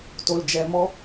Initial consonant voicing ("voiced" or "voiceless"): voiceless